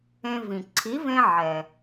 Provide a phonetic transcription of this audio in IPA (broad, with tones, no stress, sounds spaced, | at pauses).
ẽ˧ v ĩ˩ ǀʰ i˩˥ v ẽ˧ ʕ ɛ˩